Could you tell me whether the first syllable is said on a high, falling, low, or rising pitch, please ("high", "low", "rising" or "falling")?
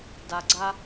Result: low